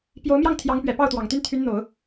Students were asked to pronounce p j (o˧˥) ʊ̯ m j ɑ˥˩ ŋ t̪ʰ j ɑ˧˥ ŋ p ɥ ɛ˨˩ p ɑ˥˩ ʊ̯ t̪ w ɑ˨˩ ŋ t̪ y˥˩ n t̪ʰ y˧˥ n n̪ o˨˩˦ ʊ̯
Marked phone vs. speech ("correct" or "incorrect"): correct